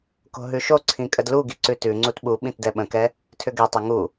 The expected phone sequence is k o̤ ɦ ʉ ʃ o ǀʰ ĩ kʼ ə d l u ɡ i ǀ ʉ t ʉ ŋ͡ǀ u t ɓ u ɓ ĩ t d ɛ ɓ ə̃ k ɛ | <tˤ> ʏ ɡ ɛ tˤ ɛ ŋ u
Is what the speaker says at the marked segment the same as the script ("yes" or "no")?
no